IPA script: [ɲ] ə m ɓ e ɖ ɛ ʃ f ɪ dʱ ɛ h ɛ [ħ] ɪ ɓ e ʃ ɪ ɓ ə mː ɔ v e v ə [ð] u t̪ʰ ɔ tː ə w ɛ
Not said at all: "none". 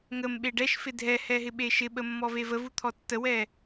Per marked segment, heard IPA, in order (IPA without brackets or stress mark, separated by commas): ŋ, ɦ, v